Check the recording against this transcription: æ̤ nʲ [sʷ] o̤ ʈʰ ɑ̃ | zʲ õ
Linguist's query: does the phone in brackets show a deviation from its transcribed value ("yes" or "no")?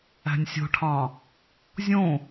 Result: yes